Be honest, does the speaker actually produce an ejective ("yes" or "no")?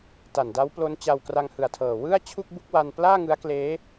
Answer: no